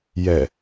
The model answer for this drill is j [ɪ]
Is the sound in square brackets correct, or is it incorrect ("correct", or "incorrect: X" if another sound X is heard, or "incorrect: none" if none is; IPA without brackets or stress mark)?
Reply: incorrect: ɛ